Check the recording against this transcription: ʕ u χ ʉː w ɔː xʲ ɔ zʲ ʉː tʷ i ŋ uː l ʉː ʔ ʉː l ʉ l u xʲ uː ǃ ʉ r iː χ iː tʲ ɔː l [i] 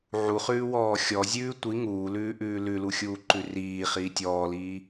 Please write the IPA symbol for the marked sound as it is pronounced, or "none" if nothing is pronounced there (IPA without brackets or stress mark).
iː